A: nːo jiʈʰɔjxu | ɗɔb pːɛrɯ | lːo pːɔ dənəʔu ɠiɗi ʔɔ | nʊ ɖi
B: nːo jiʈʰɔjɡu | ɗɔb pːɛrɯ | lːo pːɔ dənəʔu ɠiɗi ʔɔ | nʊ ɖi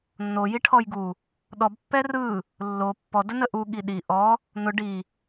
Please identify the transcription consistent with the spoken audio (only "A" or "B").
B